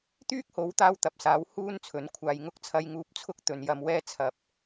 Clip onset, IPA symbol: t̪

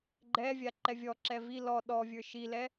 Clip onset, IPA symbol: ɡ͡ǃ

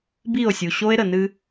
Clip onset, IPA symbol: b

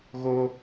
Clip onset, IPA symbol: ɣ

